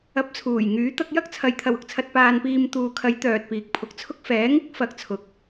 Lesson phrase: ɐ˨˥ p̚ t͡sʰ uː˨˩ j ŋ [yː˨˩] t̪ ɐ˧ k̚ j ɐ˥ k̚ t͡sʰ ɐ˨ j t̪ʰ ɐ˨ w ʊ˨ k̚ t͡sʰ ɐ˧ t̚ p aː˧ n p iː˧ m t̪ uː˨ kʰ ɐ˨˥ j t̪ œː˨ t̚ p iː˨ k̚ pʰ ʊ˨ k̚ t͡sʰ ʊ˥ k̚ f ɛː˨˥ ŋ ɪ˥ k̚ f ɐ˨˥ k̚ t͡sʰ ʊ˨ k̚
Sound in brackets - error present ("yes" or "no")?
yes